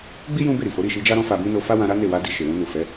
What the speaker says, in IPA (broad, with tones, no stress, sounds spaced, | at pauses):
ɡ͡b i˦ j ũ˦ b e˦˨ ɾ i˨ f o˨˦ ɾ i˦˨ ʃ i˧ d͡ʒ a˦ ɾ ɔ̃˦ f a˧ b ĩ˦ n o˧ f a˦ w ã˧ ɾ a˦ n e˦˨ w a˧ d i˨ ʃ e˨ w ũ˧ n u˨ f ɛ˨˦